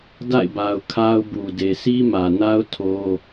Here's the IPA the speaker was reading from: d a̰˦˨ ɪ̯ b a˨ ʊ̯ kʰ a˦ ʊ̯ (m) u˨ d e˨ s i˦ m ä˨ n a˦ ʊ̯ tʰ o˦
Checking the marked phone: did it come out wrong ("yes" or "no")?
yes